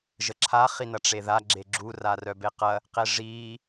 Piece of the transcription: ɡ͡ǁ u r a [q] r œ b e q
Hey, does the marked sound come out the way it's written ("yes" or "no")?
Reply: no